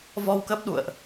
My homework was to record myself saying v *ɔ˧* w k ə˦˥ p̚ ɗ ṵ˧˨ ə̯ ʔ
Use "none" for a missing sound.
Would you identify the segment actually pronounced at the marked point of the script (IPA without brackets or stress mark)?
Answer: ɔ˧